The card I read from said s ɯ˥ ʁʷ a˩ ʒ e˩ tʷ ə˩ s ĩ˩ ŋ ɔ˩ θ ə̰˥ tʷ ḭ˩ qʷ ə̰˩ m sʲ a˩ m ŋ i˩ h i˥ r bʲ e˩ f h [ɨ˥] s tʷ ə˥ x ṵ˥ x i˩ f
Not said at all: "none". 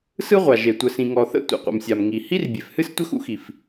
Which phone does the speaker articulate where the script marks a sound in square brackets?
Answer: ɨ˥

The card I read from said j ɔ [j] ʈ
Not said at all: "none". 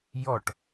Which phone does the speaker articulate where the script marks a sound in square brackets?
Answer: none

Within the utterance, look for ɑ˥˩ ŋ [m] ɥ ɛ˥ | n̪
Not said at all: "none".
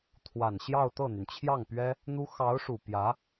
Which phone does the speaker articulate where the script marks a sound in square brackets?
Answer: p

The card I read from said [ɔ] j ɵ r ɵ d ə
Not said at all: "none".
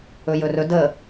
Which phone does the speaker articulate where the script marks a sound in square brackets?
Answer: ɵ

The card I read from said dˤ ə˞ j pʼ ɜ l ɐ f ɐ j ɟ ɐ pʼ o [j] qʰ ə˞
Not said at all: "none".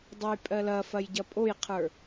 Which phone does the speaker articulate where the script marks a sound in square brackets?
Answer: j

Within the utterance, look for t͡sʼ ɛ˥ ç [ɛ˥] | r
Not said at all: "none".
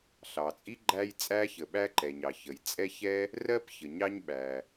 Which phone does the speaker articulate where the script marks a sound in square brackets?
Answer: ɛ˥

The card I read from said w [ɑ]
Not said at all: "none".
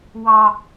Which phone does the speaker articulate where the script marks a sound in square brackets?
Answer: ɑ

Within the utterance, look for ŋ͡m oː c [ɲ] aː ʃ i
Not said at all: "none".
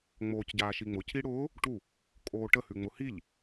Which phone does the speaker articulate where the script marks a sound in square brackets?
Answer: ɟ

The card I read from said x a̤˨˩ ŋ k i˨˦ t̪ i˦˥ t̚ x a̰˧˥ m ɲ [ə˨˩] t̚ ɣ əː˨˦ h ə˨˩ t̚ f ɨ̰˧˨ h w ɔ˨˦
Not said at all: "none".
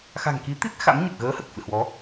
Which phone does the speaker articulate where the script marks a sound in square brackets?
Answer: ə˨˩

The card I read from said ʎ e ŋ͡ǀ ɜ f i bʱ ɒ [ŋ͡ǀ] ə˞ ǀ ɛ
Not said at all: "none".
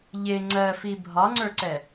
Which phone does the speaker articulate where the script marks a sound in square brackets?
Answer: ŋ͡ǀ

